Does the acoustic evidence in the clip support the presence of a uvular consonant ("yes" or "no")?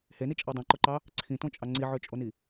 no